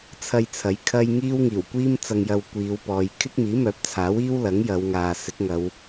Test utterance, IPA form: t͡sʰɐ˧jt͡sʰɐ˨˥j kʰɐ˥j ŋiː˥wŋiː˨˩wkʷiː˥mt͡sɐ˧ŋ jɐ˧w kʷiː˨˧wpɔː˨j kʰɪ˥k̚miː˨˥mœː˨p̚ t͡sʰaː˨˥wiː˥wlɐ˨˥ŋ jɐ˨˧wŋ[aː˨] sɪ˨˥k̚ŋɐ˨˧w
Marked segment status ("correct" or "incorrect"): correct